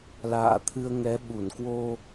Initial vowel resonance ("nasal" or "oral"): oral